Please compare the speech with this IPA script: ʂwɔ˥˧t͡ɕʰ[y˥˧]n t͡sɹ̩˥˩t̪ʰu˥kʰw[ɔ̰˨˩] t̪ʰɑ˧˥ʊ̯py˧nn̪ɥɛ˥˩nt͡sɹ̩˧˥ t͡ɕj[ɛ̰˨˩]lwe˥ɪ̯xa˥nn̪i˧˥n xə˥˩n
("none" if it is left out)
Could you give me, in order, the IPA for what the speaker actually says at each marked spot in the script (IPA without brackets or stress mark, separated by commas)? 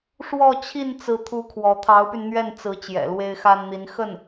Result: i˥˧, ɔ˧˥, ɛ̰˨˩